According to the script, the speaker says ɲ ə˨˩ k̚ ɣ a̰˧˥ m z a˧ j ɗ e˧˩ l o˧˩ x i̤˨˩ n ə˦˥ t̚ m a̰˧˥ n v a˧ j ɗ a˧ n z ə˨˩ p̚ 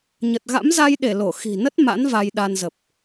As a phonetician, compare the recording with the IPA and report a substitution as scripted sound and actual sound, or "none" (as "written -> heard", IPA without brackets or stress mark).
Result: k̚ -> t̚